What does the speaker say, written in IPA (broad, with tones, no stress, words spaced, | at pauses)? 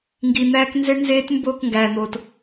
ŋɡi˨n̪æː˦k nze˦ɳnzeː˦t mboː˦˨kŋɡæː˨n̪oː˨t